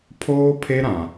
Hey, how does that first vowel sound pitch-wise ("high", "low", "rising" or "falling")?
high